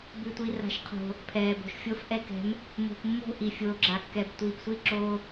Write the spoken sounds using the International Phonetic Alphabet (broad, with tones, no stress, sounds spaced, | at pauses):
b ʉ˨ tʷ i˨ r a̤˨ ʃ qʰ o̤˨ | pʰ ɛː˨ b o̤˨ ʃ fʲ o˦ f ʔ ɛ˦ k ɛ̤˨˦ m | m o̤˨ p mː o̤˦˨ ʔ i˨ fʲ oː˨ ɡ͡ǁ a˨ kː ɛ˨ b tʷ iː˨ p sʷ i˦˨ ǁ oː˦